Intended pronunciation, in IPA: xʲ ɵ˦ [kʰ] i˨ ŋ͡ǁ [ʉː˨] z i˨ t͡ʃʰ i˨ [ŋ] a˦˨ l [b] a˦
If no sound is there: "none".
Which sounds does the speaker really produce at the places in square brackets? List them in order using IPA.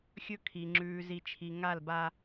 kʰ, ʉː˨, ŋ, b

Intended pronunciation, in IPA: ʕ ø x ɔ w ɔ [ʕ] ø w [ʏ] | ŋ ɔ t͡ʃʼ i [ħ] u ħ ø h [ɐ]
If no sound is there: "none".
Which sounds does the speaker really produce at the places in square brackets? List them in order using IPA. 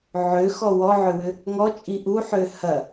ʕ, ʏ, ʔ, ɐ

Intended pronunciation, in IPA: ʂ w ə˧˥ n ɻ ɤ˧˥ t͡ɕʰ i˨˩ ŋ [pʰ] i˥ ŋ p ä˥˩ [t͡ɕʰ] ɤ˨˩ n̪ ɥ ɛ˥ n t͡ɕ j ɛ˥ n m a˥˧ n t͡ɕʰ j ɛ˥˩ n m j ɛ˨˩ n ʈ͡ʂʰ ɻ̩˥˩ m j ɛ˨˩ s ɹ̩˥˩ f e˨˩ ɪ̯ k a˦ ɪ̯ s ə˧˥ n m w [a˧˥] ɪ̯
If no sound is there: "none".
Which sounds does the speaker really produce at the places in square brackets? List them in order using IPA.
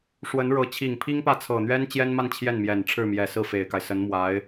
pʰ, t͡sʰ, a˧˥

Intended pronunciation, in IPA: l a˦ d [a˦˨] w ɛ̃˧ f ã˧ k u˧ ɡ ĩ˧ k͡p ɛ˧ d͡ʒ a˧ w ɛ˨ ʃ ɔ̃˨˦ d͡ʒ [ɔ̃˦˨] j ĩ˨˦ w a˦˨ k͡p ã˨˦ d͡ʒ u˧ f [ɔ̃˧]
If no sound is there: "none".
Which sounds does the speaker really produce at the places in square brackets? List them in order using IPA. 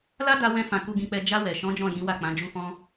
a˧, ɔ̃˦˨, ɔ̃˧

